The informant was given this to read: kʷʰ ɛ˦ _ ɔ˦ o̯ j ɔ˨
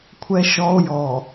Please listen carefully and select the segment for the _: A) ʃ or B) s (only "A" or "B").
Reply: A